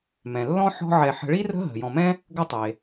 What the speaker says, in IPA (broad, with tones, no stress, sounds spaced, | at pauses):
m ɛ̃˩ lː ɔ̃˥ ħ ɔ̤˦ ʕ ɛ˨ ħ ə̤˨ ɭ i˥ r ə̤˦ ɦ ə̤˩ j ɔ̃˨ m ɛ̃˥ | ɡ ɵ˦ tˤ e˩